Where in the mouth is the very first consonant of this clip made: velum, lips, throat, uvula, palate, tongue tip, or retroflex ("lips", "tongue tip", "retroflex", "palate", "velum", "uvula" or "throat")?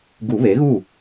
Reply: velum